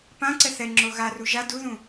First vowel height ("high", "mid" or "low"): low